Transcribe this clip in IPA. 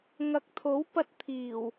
ŋɐ˨k̚t̪ʰo˨˥wpɐ˧t̚t̪ʰiː˨˩w

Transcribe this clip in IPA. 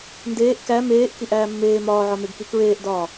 ndeːʔ kæ meːʔ kiʔæːmːeː mɒːʕɒmeɡki kɹeːʔdɒː

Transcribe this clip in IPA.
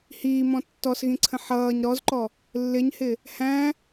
hiːmɔ̃ tːɔsɣĩǀʰə̃ ħʌːɲ ɾɔzǃɔ | lːɪɲhɪ | hæ̃

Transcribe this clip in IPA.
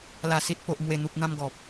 la˨˩si˨t̚ po˨ʔmwe˨˩n̪u˨p̚ n̪ã˧mɡɔ˨p̚

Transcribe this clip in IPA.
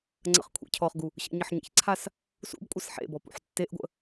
ŋ͡ǀə̰χkʷʰḛcʰɔχɡu | ɕə̰ɲəħɲḛçǀʰas | sṵbkʷʼəs ħḛbɔ pṵħtːeʔɡʷə̰

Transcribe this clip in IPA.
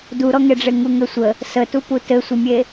duɾɔŋeɖ͡ʐe ŋuŋɘsʷə | sətupu tɘsʷəmʲe

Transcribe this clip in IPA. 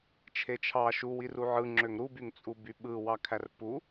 t͡ʃʰet͡ʃʰɑ ʃuwiru ʕɯŋ͡ǁøŋ ɾubyŋt͡sʼu byɓɯwɑ kʰærpu

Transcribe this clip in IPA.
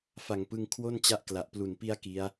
fa˨˩ŋpɯ˧ŋ kʰwo˥˩nt͡ɕa˦˥ʔkla˨˩ʔ plu˨˩npi˧a̯ ki˦˥a̯

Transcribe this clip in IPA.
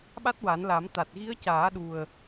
ɓa˦˥t̚wa˨˩˦nla˨˩˦mt̪a˨˩t̚ ɣi˧˥ə̯caː˨˩˦ɗu˨˩ə̯

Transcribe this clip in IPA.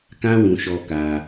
kã˦wũ˧ʃɔ˧ ka˧

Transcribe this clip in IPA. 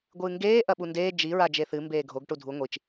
ɡʷɨːŋɡeː ʔɐɓundeː d͡ʒi ɹad͡ʒeθɨ mbeːɡʱoɡ ʈudʱu ŋʷit͡ʃ

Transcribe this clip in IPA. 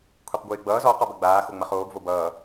kʷʰeqɡʷɪːɡ͡bʌːz ɔ qɔbɐɡ͡baː xoŋ͡mɐχoːɡ vobʌː

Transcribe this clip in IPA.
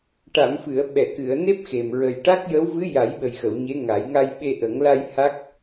ʈa˨˩˨mfɨ˨˩˨ə̯ ɓɛ˨˩˨kɨ˨˩˨ə̯ne˦˥p̚ xe˨˩m ɹə˨˩jʈa˦˥k̚jə˧˥w vɨ˧˥ja˨˩˦jɓə˨˩jxə˨˩˨w ɲe˧˥ŋa˨˩˦j ŋa˧jɓe˧ʔə˨˩˦ŋ la˧j ha˦˥k̚

